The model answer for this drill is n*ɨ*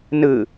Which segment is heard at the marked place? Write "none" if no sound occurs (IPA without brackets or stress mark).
ɨ